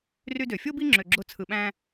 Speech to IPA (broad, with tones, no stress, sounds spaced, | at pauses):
r y˧ d ø˨ fʲ o˦ b i˦ ŋ͡ǁ ø˧ ɡ͡ǁ o˦ t͡sʰ ɯ˧ ɓ æ̃˦